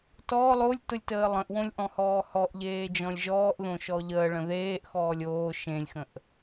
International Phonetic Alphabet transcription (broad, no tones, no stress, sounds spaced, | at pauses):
t ɔ lˠ o lʲ t ʊ lʲ t əː lˠ ə̃ ʔ w õ lʲ ʔ ɔ̃ h ɔː h ɔ ʔ ʎ eː d͡ʒ ɔ̃ lʲ ʒ ɔː ʔ ð õ ʃ ɔ ʎ əː ɭ ə̃ ð eː ʔ x ɔː lʲ oː ʃ ẽ lʲ x ə̃ ʔ